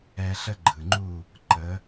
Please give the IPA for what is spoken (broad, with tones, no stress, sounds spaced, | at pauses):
ɛ˧ ɬ ə˥ ɡ͡ǃ ɯ˩ ŋ͡ǃ u˥˩ | ǃ ə˩˥